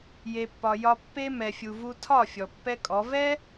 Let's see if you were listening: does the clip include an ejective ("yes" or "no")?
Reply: yes